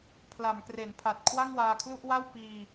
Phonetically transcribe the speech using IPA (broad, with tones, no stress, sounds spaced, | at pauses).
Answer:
pʰ l a˩˦ m k r e˩˦ n pʰ a˨˩ t̚ kʰ w a˥˩ ŋ w aː˧ kʰ l u˥˩ ʔ w a˥˩ w p iː˧